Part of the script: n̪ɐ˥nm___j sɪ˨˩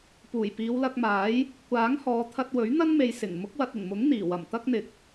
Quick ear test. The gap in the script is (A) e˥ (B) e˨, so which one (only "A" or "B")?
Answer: B